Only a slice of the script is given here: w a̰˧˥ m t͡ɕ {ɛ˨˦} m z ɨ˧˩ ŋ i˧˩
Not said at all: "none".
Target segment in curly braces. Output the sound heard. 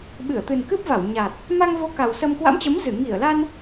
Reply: ə˨˦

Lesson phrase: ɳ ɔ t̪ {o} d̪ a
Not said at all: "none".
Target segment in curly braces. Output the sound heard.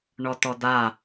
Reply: ɔ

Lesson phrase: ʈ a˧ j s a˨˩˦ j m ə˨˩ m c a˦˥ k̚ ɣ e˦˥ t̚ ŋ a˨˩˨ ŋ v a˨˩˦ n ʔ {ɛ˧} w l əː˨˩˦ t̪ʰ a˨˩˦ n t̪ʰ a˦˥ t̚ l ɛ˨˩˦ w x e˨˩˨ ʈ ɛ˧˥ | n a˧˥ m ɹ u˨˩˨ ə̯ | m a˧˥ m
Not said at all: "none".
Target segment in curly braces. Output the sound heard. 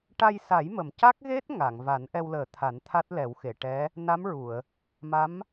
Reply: ɛ˧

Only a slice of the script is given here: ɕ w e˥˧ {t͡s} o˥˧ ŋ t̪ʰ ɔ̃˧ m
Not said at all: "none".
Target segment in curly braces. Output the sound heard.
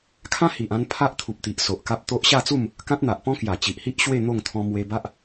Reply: n̪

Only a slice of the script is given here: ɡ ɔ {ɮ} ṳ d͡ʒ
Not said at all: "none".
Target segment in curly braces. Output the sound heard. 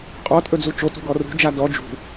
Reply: r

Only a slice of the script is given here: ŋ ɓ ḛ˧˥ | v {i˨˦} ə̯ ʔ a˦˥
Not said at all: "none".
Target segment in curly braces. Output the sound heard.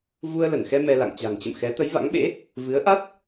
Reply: ɨ˨˦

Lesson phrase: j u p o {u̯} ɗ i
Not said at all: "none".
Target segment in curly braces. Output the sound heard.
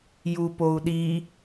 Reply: u̯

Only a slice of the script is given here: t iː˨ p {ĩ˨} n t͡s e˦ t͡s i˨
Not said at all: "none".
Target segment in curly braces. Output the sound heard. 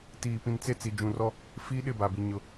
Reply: ĩ˨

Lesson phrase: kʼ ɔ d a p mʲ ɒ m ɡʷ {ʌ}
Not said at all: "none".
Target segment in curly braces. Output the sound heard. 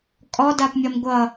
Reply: ʌ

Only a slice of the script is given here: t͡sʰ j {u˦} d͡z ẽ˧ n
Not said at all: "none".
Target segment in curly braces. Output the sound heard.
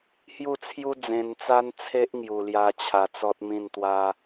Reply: u˦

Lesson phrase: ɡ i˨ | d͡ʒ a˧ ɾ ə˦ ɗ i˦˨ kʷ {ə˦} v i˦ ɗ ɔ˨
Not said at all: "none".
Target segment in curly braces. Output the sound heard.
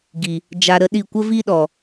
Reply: ə˦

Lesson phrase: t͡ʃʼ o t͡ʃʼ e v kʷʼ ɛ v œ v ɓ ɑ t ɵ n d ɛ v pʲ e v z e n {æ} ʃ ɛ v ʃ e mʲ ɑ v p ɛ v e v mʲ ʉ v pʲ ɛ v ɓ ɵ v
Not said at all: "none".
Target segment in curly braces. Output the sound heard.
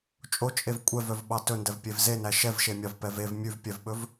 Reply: æ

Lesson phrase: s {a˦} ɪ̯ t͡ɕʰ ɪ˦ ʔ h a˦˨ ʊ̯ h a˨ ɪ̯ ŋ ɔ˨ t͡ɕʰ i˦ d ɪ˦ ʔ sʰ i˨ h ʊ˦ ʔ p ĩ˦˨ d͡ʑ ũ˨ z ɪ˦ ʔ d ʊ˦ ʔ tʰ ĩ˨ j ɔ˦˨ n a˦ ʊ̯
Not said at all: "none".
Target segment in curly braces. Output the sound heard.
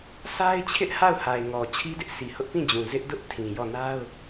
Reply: a˦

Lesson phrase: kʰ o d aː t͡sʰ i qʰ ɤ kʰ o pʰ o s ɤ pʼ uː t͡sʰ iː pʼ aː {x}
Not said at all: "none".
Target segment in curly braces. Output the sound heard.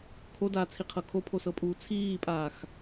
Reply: x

